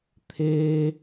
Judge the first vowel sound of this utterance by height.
mid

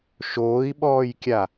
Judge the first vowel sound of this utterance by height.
mid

